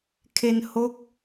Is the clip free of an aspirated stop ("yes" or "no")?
no